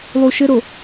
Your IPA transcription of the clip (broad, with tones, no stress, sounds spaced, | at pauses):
lˠ u˨ ʃ ɘ˦ ɾ o˨